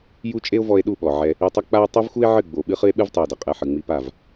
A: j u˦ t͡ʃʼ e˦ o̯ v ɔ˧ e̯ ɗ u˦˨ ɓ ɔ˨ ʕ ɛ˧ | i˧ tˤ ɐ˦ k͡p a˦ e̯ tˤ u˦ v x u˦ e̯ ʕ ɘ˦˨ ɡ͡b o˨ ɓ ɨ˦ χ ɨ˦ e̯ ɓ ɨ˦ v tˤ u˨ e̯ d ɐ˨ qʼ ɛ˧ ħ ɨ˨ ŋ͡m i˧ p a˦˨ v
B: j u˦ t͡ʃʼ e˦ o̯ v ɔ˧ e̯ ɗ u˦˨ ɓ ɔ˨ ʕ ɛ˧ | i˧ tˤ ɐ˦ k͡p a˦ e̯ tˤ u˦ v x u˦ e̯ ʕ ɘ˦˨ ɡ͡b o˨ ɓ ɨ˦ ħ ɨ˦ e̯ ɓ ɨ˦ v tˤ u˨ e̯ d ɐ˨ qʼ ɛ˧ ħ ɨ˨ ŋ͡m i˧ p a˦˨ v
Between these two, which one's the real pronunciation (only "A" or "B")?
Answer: A